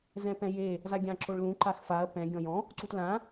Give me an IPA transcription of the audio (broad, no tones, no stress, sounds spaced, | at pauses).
z ɛ̃ p ɛ̃ j e | z a ɡʲ ã ǁ o ɭ l ũ ǃ a x f a ɐ̯ p ɛ̃ ɡʲ ɔ̃ j ɔ̃ | ǀ u t l ã